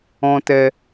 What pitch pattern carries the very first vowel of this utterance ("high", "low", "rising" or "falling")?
high